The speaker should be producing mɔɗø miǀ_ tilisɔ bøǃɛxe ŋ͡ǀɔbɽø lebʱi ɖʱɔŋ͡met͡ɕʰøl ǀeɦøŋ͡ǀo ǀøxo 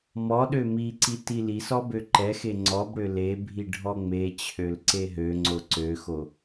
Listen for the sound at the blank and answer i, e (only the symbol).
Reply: i